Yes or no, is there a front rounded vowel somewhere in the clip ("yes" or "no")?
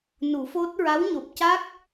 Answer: no